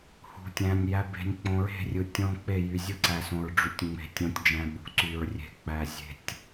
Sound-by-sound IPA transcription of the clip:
h ṳ˨ tʲ æ̃˨ nʲ j æ˨ b e̤˨ nʲ k͡p õ˨ ɹ e̤˦˨ rʲ ɯ˨ tʲ õ˦ k͡p e˦˨ j y˨ zʲ ɯ˦ ǀ æ˨ s õ˨ ɹ ɖ͡ʐ y˨ tʲ ŋ͡m e̤˨ tʲ õ˨ tʲ d͡ʒ æ̃˨ ɓ ṳ˨ ǀ y˨ ɹ rʲ e̤˨ k͡p æ˨ zʲ e̤˨ tʲ

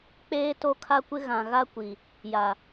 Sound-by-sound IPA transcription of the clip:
k͡p eː˦ t o˦ kʰ a˦ kʷ ɪ˦ ɣ ã˨ ɣ a˦ kʷ i˨ | j a˨

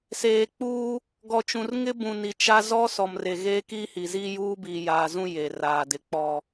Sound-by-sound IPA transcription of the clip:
s eː˨ k͡p uː˦ | ɡ ɔ˨ t͡ʃ ũ˨ r ŋ ɪ˦ b ũ˨ n i˨ t͡ʃ a˦ z ɔ˦ s ɔ˨ m r e˨ ɣ eː˦ k iː˦ h i˨ z iː˦ j uː˦ b iː˨ j aː˨ z ũ˦ j e˨ r aː˨ d ɪ˨ k͡p ɔ˨

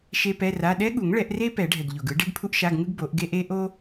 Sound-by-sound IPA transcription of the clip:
ʃ e˥ p ɛ˧˥˧ r a˧˥˧ ɗ ɛ˥ ɠ u˨˩˦ ŋ ɭ ɛ˨˩˦ ʔ r e˥ p ɛ˨˩˦ ɖʱ ɛ˩ ɡ ʎ o˩ ɡ ɯ˥ ɖ e˥ ɡ pʰ u˥ ʔ ʃ a˧˥˧ ɡ ŋ ɯ˥ ɡ b o˨˩˦ ʔ ɡ e˥ ʔ e˥ ʔ o˥

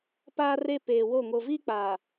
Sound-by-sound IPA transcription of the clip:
p aː˦ r e˦ p eː˨ w o˦˨ ŋ o˨ v i˦ k͡p aː˨

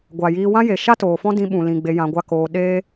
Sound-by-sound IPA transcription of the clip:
ɡʷ a˨ j iː˧ w ã˦ j e˨ ʃ a˦ t oː˨ f ɔ̃˦ d ĩ˧ ɓ ũ˨ l ĩ˨ ɡ͡b e˧ j ã˧ ɡʷ a˦ k oː˧ ɗ eː˦

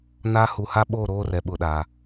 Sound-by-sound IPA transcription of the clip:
n aː˦ h u˨ h a˦ ɓ oː˦˨ ɾ oː˦ r ɛ˨ ɓ ʊ˨ ɗ aː˨

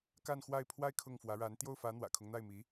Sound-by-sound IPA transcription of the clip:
k a˥˧ n x w a˥˩ ɪ̯ pʰ w a˥ ɪ̯ kʰ ʊ˥˩ ŋ f w ä˧˥ ɻ a˧˥ n t̪ j o˥˩ ʊ̯ f ä˧˥ n̪ w ä̰˨˩ kʰ ʊ˦ ŋ n̪ a˥˩ ɪ̯ m i˧˥

